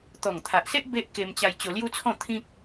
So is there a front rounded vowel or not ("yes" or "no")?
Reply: no